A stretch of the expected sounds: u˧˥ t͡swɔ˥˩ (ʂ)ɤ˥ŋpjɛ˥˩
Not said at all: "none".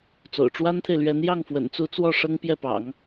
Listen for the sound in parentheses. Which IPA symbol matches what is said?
ʂ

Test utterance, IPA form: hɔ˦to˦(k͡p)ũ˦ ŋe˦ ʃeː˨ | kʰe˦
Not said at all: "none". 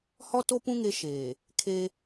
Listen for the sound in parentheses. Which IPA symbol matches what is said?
p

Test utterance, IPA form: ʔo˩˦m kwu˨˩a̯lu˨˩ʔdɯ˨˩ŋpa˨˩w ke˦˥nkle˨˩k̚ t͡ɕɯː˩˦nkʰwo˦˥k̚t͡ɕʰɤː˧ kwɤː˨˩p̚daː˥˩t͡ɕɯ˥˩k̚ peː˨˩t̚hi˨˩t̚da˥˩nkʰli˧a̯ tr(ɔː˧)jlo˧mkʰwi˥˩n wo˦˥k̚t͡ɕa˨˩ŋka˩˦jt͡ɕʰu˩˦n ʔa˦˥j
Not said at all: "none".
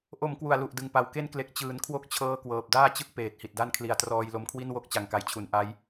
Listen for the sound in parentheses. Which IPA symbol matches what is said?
ɔː˧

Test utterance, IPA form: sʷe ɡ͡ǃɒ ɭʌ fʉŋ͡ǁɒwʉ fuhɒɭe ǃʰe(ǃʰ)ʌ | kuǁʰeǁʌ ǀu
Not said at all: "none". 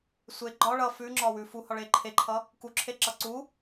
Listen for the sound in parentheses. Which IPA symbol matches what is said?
ǃʰ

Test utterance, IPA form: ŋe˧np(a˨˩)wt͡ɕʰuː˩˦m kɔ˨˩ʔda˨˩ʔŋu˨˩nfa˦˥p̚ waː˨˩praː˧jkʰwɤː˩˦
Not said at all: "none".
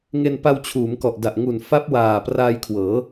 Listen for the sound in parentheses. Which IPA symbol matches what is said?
a˧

